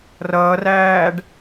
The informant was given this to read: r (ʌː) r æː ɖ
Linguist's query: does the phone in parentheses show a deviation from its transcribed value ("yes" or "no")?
no